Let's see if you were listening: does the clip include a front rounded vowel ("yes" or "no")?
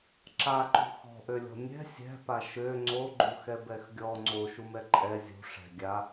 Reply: yes